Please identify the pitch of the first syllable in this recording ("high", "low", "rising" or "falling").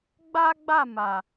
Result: high